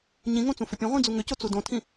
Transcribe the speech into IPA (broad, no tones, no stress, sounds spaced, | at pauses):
ɲ ĩ ŋ õ t͡s ũ f ʏ pʲ ɐ̃ ʁʷ ĩ d͡z u ŋ ʏ c o t͡s u d õ tʰ ĩ